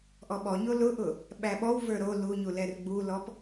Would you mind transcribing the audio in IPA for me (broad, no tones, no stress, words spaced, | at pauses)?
ʔɔɓɔɲo lʊʔʊ | ɓæɓɔw və˞ɾo luɲulɛr ɡ͡bulɔp